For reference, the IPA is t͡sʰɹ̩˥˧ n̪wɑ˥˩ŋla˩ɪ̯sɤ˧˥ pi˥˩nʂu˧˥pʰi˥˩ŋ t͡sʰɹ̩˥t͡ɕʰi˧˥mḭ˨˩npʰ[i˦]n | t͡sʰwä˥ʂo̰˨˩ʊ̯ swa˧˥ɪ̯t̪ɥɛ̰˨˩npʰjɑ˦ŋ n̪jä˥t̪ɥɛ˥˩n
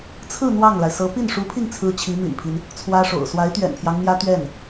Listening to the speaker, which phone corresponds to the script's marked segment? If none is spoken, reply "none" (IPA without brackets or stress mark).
i˦